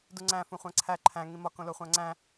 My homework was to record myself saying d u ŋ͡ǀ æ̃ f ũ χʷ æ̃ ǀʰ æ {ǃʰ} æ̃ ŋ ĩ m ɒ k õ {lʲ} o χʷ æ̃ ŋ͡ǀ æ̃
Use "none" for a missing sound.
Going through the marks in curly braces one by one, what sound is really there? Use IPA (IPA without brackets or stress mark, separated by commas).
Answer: ǃʰ, l